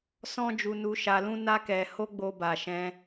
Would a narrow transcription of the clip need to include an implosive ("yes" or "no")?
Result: no